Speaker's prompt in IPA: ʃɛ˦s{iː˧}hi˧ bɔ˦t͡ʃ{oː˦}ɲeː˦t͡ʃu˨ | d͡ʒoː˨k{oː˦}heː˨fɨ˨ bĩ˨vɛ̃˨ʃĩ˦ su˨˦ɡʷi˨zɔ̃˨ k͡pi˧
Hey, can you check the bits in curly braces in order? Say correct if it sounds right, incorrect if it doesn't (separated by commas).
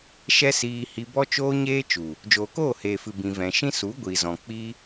correct, correct, incorrect